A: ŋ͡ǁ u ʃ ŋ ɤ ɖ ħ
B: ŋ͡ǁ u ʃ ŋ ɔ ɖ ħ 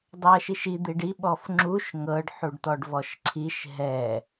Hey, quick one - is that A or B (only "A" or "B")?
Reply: A